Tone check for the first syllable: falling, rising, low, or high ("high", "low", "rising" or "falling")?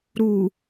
low